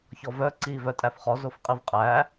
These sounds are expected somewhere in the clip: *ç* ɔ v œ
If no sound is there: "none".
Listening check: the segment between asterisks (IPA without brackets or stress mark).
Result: ç